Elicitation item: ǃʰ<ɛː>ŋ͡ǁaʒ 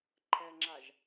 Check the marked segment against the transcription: incorrect: ɛ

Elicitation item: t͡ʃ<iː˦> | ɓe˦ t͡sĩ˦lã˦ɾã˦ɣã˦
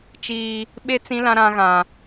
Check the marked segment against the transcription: correct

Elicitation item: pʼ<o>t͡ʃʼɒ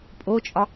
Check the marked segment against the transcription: correct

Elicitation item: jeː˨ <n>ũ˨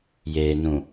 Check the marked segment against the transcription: correct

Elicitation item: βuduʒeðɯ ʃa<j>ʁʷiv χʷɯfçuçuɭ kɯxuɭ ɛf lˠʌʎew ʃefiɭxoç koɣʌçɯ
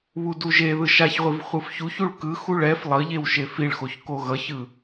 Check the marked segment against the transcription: incorrect: ç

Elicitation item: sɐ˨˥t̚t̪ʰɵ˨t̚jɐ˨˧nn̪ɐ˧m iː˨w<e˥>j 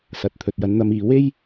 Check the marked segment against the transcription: correct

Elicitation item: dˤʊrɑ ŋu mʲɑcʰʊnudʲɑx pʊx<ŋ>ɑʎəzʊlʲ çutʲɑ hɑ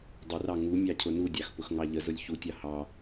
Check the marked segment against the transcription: correct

